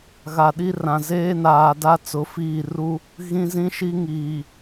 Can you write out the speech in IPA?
ɣ a˨ ɗ i˦ r ã˨ z eː˦ n aː˨ d a˦ t͡s ʊ˨˦ f iː˦˨ r u˦ | ɣ ĩ˦ z ĩ˦ ʃ i˦ ŋ iː˨

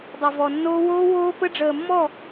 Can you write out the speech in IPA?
dˤ ø˨ v ɔ˨ nː oː˦ w oː˦ w oː˦ p ə˦ ɖ͡ʐ əː˨ mː ɔ˦˨

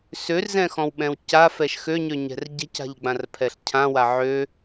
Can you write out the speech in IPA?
s ø r z ɛ̃ x ɔ̃ w ɓ ɛ̃ w c a f ɛ ʃ x ø ɲ ø ɲ ɛ̤ r ɟ ɛ̤ c a̤ ʎ ɡ͡b ã r pʰ ɛ ɬ cʰ ã w a ʕ ø

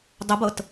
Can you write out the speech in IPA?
dˤ ɛ b ɤ t

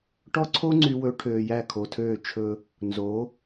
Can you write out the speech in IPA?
ʈ ɔ˦ ǀʰ o˦ ŋ͡ǀ y˦ w ɵ˦ ʈʰ øː˨ j æ˦˨ kʰ o˨ tʰ øː˦˨ t͡ʃʰ ɵ˦ | n z o˨˦

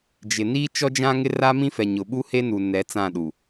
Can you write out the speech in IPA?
d͡ʒ ɪ˨ n iː˦ t͡ʃ ɔ˦ d͡ʒ ã˦ ŋ ɪ˦ r a˦ m ĩ˦ f ɛ˨ ɲ ʊ˨ ɓ u˦ h e˦ n u˨ n ɛ˨˦ t͡s ã˦˨ ɗ u˨

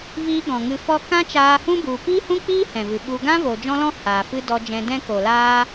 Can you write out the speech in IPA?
v iː˧ ɡ ɔ̃˨ ŋ ɨ˧ f ɔ˦ k ã˦ t͡ʃ aː˧ h ũ˦ b u˧ p iː˦ h ũ˦ k͡p iː˦ h ɛ̃˨ v ɨ˨ ɓ u˧ ɡ ã˦ v o˨ d͡ʒ ɔ̃˦ l ɔ̃˦ h aː˨ f ɨ˦ d ɔ˧ d͡ʒ ɛ̃˧ d ɛ̃˦ k o˨ l aː˦

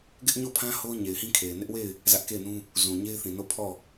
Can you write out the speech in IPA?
ɡ ɪ˦ ʔ ɲ o˦˨ pʰ ã˦ h o˦ ʊ̯ ɲ e˨ ɪ̯ h ĩ˦ kʰ e˨ ɪ̯ n ɪ˦ ʔ w e˦˨ ɪ̯ | z ä˦ ʔ k e˦˨ ɪ̯ n ũ˦ | z ũ˨ ɲ e˦ ɪ̯ θ ĩ˨ n o˦˨ pʰ ɔ˦˨

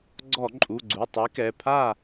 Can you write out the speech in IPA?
ɡ͡ǀ ɔ˧˩˧ ǃʼ u˩˧˩ ɡ͡ǀ u˩˧˩ tˤ i˨˥ k ɛ˩˧˩ pʰ a˥˨

